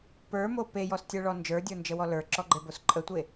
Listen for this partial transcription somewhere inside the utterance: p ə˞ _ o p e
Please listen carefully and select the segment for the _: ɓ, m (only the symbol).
m